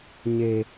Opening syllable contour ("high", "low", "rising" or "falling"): high